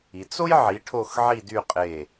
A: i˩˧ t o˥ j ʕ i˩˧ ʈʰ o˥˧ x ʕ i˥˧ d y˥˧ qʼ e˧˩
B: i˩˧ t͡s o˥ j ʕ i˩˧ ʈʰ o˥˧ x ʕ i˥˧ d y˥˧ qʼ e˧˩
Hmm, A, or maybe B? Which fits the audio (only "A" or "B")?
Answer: B